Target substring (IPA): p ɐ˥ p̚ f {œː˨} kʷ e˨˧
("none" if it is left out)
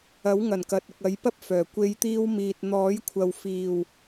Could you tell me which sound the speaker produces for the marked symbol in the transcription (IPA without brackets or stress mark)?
œː˨˩